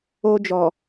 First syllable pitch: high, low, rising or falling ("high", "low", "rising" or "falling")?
high